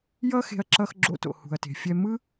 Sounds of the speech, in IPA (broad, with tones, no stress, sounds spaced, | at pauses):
j ʌ˦ x e̤˧ ɐ̯ ǁ ʌ˧ x ɡ͡ǁ o̰˧ t o̰˨ h ṳ˨ ɐ̯ t e̤˨ fʲ ɛ˧ m ɯ˦